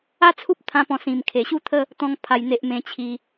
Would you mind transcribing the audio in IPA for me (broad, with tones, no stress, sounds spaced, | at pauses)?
a˥˧ t͡sʰ u˦ p̚ t̪ʰ ã˦ p ɔ̃˧ s ĩ˨˩ m kʰ e˨˩ ɕ u˥˧ t̪ʰ ə˥˧ | t̪ ɔ̃˧ ŋ pʰ a˨˩ j n̪ e˨ ʔ m ẽ˧ t͡ɕʰ i˧